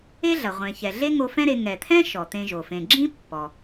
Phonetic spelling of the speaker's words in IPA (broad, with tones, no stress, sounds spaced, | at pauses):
e˥ ɮ ɐ˩ ʁʷ ẽ˩ ç ɛ˩ ɮ e˥ ŋ o˧ f ɛ̃˥ ɾ e˧ ŋ ɛ˩ t̪ʰ ɛ̃˥ ʃ ɔ˩ t̪ ẽ˧ ʒ o˩ f ẽ˩ ɡ͡ǁ ĩ˥ pː ɔ˩